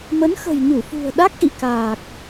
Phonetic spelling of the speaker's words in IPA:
mə˨˦nxə̤˨˩jɲu˧˩fṳ˨˩ə̯ ɗa˦˥k̚ʔḭ˧˨kaː˨˩k̚

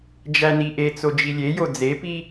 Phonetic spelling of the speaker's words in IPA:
d͡ʒæniʔet͡so d͡ʒilʲejo d͡zepi

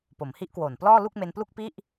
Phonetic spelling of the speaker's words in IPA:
po˩˦mhi˦˥ʔkwoː˨˩n plɔː˥˩ lu˥˩k̚me˧nplu˥˩k̚ pi˥˩ʔ

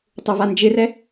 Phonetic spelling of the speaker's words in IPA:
tˤʊvand͡ʒɪrɛ

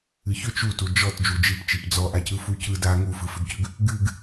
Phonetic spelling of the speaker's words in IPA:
ɨçʏ t͡ʃutu d͡ʒɔt d͡ʒud͡ʒip t͡ʃipd͡zɔʔacɯ fucɯ da ŋufɯfʏɡcʏɡ | ɡɨɡ

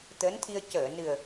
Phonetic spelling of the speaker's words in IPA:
t̪əː˧˥nt̪ʰi˧ə̯ cəː˨˩˨nɨ˨˩ə̯

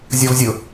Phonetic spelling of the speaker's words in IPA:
zʲɒvzʲʊ

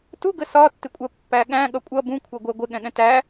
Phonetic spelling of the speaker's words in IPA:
tu ɡəsɒtːɪkʷʼɜ pːæɠæ̃ ɠʌkʷʼʌ bũkʷʰʌ ɡʷɛɡʷɪɠɛ̃ɠɛ̃ tæ

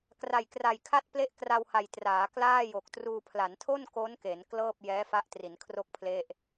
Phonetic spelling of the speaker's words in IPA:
kra˨˩jkra˨˩jkʰa˥˩t̚ple˥˩ʔ kra˧wha˨˩jtraː˩˦ klaː˥˩jo˨˩k̚truː˧ pʰla˩˦ntʰo˥˩n ko˦˥nke˩˦n klɤː˥˩p̚ jɛː˦˥fa˦˥ʔ tri˩˦nkʰro˥˩k̚pʰle˥˩ʔ

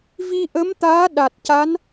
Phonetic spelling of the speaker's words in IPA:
vi˧ʔə˧˥mt̪aː˧˥ ɗa˨˩t̚ca˧˥n

